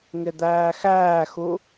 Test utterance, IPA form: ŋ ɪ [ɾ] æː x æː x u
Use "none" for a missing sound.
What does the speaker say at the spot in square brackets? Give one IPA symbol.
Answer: d̪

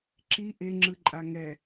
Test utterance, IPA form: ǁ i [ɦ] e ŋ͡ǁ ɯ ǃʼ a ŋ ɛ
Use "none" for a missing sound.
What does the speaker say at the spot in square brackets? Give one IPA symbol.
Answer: ʔ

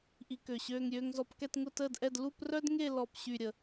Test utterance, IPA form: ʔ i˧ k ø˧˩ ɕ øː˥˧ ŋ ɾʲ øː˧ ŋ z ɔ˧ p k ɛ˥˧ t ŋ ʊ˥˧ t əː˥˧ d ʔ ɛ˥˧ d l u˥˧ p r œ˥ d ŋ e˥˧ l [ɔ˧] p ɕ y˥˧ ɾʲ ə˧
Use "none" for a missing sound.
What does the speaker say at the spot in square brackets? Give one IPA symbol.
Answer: ɔ˥˧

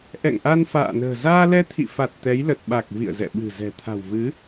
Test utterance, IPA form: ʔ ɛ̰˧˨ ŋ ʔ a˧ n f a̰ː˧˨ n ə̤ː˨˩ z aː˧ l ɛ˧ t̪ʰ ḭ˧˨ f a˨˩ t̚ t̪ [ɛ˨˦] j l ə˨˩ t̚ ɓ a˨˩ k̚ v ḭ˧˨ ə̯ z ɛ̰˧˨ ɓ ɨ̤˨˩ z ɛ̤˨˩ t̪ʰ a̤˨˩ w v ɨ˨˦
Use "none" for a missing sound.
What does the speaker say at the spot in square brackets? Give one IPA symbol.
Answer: ɛ˨˦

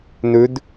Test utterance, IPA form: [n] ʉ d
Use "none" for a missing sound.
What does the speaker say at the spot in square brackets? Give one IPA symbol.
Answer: n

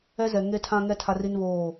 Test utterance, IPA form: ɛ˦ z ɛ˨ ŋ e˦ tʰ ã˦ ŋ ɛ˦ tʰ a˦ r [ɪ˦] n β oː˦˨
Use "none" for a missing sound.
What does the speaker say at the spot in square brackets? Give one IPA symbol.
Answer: i˦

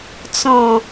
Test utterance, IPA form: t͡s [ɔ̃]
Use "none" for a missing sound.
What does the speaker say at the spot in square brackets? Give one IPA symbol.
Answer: ɔ̃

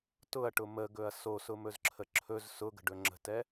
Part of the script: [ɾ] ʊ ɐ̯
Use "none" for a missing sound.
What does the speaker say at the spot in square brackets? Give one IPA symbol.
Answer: t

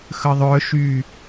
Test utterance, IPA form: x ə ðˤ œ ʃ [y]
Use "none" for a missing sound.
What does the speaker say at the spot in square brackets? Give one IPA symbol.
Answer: y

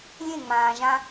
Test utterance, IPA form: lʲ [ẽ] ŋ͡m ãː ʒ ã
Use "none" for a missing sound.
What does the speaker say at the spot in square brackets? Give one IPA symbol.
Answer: ẽ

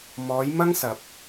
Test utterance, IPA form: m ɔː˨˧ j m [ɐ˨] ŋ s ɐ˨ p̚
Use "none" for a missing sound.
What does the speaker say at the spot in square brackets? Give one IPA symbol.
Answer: ɐ˥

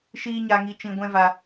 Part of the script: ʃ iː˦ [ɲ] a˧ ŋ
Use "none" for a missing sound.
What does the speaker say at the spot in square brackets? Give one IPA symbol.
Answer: ɲ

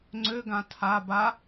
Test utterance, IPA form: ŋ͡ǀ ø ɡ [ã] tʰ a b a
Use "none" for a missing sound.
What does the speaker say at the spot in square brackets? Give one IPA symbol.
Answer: ã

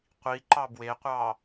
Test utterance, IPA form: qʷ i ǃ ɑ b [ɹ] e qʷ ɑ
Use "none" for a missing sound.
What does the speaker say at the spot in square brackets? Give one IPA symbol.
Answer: w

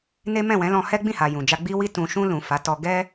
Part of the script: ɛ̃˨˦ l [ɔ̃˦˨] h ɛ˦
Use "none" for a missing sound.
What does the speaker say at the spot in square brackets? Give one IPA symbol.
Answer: ɔ̃˧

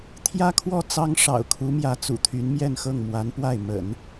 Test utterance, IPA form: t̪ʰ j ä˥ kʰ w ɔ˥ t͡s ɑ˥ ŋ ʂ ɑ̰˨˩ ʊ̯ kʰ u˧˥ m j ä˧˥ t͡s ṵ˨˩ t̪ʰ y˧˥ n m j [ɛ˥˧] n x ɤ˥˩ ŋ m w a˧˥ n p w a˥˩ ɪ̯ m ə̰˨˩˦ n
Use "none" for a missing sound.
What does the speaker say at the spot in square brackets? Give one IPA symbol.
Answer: ɛ˥˧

